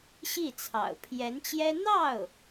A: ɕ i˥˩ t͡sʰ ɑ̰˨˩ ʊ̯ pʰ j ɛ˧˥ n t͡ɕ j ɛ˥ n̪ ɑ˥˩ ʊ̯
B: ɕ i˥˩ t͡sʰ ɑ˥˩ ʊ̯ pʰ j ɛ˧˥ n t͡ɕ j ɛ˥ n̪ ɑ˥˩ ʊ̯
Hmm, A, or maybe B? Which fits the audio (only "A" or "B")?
A